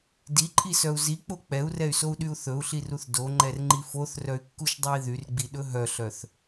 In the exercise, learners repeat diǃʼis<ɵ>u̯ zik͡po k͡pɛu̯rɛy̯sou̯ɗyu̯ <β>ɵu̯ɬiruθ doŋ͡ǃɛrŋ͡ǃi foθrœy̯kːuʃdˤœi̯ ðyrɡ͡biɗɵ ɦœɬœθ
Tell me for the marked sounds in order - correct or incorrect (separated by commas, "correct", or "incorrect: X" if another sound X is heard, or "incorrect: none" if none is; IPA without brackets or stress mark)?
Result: incorrect: œ, incorrect: θ